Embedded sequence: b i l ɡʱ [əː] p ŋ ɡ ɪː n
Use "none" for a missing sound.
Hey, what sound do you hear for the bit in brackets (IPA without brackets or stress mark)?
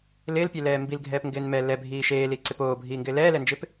ɛː